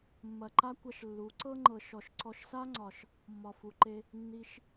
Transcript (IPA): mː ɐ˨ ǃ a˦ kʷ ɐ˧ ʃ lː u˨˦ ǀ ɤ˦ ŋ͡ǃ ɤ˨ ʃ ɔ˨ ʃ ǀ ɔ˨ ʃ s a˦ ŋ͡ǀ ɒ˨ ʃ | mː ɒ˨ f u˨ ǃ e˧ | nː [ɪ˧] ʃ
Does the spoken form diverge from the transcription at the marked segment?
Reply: yes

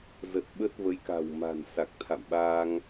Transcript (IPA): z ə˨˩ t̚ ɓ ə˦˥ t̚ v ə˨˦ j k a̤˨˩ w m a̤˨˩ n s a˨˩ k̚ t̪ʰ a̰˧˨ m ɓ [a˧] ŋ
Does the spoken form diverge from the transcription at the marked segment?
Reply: no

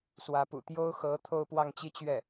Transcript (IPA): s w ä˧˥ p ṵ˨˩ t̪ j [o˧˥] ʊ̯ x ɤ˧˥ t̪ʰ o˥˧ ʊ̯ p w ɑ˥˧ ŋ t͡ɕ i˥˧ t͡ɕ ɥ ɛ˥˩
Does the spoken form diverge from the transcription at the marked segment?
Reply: yes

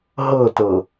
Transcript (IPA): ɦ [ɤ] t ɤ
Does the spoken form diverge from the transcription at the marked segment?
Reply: no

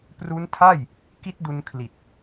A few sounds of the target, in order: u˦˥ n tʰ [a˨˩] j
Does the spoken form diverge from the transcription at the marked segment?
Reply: yes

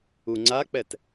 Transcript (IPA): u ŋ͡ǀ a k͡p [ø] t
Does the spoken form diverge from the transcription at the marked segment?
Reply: yes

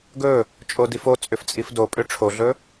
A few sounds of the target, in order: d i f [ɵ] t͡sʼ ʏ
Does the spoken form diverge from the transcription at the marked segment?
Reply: yes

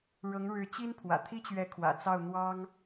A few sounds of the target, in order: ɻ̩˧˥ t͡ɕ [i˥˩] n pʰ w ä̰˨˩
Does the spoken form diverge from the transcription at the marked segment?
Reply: yes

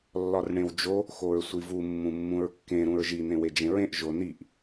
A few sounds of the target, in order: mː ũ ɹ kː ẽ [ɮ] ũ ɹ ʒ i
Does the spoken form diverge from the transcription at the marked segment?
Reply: yes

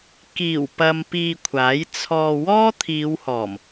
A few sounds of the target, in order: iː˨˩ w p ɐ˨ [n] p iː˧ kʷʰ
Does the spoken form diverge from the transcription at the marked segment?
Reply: yes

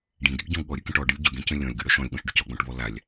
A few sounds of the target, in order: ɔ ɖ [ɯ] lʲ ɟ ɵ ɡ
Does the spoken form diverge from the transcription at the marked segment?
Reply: no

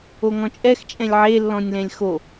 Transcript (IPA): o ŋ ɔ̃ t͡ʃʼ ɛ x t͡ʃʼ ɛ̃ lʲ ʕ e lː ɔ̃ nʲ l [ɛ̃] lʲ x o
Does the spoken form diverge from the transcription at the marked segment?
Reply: no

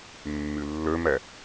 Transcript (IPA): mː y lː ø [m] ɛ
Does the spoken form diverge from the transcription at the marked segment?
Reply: no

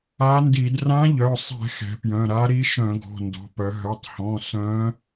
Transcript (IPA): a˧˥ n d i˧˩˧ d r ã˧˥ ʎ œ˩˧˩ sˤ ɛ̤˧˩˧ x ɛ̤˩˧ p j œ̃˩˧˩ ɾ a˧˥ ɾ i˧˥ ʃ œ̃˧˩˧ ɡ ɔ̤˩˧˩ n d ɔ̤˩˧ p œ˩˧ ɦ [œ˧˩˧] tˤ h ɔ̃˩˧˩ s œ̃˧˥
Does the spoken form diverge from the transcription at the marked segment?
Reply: yes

